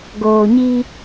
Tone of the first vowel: low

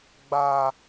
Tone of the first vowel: low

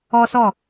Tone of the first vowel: high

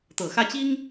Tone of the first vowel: low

